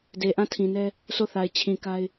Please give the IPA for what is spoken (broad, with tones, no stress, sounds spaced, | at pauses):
d e˨ ʔ ã˦˨ tʰ ĩ˨ n ɛ˦ | s o˦˨ θ a˨ ɪ̯ t͡ɕʰ ĩ˨ k a˦ ɪ̯